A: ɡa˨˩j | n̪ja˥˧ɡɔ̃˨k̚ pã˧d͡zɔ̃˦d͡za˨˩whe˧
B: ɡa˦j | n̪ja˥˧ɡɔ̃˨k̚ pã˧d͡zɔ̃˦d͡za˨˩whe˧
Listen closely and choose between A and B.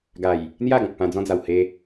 A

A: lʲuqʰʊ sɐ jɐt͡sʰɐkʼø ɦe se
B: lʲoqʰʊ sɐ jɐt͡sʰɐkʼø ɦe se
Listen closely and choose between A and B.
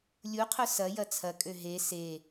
A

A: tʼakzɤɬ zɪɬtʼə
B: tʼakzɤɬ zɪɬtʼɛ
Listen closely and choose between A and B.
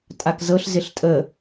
A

